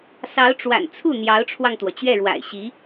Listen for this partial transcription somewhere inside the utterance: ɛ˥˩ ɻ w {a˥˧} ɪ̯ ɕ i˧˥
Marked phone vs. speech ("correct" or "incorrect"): incorrect